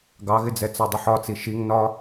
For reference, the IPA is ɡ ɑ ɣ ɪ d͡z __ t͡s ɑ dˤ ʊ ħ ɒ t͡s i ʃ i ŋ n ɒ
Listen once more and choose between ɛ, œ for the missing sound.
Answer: ɛ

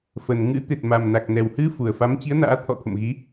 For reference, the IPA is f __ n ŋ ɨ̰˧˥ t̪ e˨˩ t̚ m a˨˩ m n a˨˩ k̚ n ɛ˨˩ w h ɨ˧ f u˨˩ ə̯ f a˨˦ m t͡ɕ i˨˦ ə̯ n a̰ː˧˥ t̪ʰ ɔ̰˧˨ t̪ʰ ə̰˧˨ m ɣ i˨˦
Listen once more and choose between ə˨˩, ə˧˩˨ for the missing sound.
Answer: ə˨˩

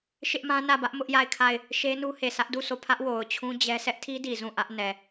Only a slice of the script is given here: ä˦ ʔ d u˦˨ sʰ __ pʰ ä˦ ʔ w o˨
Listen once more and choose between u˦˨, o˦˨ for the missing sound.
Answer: o˦˨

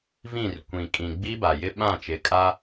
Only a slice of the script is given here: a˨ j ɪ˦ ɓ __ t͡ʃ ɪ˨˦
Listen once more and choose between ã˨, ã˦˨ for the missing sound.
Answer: ã˦˨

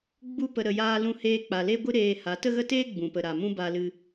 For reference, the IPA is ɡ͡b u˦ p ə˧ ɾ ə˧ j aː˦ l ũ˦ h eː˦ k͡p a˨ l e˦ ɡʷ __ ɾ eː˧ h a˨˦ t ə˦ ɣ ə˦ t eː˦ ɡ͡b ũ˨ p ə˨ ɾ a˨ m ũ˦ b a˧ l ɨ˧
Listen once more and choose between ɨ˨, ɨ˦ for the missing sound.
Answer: ɨ˦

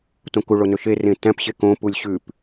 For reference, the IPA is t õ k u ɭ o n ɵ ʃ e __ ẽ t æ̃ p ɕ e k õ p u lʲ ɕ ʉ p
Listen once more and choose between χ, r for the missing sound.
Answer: r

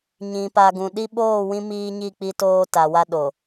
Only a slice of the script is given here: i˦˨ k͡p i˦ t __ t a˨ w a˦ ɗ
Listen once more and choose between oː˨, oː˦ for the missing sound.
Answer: oː˦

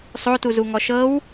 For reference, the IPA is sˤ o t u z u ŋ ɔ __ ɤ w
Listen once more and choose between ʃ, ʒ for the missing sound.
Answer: ʃ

